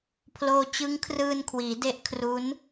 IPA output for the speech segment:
pʰ l oː˧ t͡ɕ ɯ˦˥ ŋ kʰ r ɯː˧ n kʰ w iː˩˦ d e˦˥ ʔ kʰ r u˦˥ n

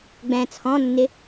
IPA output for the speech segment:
ɡ͡b ɛ̃ t͡sʰ ɔ̃ nː ɪ

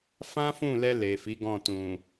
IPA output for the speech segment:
f ã˦ f ũ˦˨ l ɛ˧ l e˨ f i˨˦ ɡ ɔ̃˦˨ t ũ˨

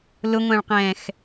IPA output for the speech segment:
l ʊ ŋʷ æ̃ ɭ q ɛ̃ː x

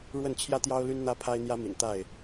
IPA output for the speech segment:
ɻ w ə˥˨ n t͡ɕʰ j ä˦ t̪ j ɑ˦ ʊ̯ l y˦ n n̪ ä˦ pʰ a˦ ɪ̯ n̪ j ä˦ m ḭ˨˩ n t̪ a˥˨ ɪ̯

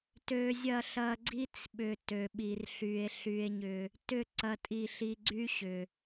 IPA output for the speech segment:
t ø˧ zʲ ɐ˦˨ ɬ ɐ˧ ɡ͡ǀ i˦ t͡s ɓ ʏ˨ t ø˨ ɓ i˨ r ɬ y˨ e̯ ɬ y˧ e̯ ɲ ʏ˧ | t ʏ˦˨ ǀ ɐ˦ tʼ i˦˨ ɬ i˦ ɡ͡ǀ y˦ ɕ ʏ˨

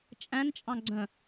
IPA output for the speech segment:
t͡ʃʼ æ̃ n t͡ʃʼ ɑ̃ ɡ͡ǀ œ̃

